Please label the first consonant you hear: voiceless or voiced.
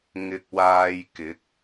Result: voiced